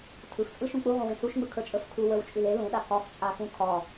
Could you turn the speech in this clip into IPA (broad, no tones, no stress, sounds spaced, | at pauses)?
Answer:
tʰ ɯ x t͡sʼ ɯ ʃ ũ k͡p u ʁ ũ w ẽ s u ʃ ŋ͡m ɯ kʰ ə˞ t͡ʃʼ ə˞ f kʰ u w ə˞ w t͡ʃʼ ʉ l e l ũ ɗ a k ɒ x t͡ʃʼ a x ũ kʰ ɒ